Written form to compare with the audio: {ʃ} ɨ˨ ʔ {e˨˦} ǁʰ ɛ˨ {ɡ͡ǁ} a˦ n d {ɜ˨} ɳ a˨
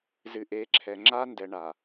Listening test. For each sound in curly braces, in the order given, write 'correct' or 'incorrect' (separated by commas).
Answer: incorrect, correct, incorrect, incorrect